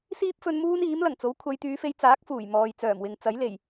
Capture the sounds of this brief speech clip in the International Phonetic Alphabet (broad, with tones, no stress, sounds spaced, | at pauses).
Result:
s iː˥ p̚ f ɵ˧ n m uː˥ n iː˨˥ m l ɐ˨˩ ŋ t͡s o˨˥ w kʷʰ ɐ˨˧ j t̪ yː˨˧ f e˧ j t͡s aː˨˥ k̚ f uː˨˩ j m ɔː˨ j t͡s œː˨˩ m w ɪ˨ ŋ t͡s ɐ˨˥ j l e˨˩ j